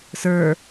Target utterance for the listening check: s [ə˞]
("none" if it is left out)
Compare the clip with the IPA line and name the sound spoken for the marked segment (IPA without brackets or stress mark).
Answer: ə˞